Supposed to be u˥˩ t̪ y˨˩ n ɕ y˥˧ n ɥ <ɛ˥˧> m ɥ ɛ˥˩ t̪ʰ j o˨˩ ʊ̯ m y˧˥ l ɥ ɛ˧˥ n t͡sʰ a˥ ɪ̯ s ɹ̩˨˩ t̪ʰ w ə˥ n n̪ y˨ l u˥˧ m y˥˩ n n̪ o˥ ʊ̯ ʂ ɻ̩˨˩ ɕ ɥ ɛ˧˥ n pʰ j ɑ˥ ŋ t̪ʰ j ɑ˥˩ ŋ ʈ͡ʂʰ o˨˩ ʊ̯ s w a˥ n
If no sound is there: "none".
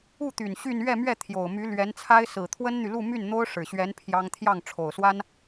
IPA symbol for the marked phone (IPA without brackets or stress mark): ɛ˥˧